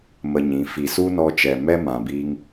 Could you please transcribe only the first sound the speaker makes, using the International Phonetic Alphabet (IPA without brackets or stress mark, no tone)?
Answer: m